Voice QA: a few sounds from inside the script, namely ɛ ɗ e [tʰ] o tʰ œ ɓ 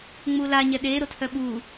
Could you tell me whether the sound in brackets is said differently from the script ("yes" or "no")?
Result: yes